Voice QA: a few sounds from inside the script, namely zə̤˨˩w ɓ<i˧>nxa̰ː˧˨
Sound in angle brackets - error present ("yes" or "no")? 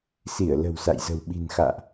yes